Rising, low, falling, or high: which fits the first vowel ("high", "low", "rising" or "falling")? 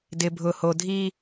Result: low